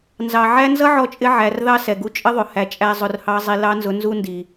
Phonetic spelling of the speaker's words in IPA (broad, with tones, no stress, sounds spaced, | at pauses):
n z ɑ˨ ʕ æ˦ n z ʌ˦ ʕ ɔ˧ t͡ʃʼ ɪ˧ ʕ æ˨ r ð ɑ˦ s ɛ˨ ɡ u˧ t͡ʃʼ ə˦ ðˤ ʊ˨ h æ˧ t͡ʃʼ æ˦ zˤ ʊ˧ r h ɑ˦ zˤ i˧ l ɑ˦ n z ʊ˧ n z u˦ n d i˨